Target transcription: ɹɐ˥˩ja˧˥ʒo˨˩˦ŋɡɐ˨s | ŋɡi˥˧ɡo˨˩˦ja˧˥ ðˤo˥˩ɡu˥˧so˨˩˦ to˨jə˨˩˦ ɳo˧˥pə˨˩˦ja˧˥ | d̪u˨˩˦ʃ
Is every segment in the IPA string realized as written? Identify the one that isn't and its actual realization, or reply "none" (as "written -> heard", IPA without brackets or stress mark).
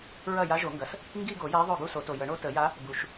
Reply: p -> t